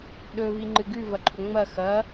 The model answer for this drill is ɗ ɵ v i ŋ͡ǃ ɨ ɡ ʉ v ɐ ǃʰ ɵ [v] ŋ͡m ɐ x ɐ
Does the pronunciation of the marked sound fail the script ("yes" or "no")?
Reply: yes